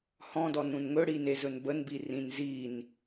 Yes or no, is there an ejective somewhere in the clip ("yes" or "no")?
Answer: no